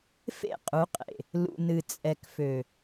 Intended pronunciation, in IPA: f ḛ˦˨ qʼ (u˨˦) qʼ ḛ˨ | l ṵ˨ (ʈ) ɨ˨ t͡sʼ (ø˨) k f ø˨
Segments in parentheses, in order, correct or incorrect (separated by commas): correct, incorrect, incorrect